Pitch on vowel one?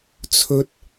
rising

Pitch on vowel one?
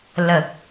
low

